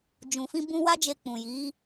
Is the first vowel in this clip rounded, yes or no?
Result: yes